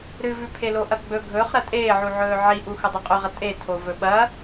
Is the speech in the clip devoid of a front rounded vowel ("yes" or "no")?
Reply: yes